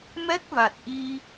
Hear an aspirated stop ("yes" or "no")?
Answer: no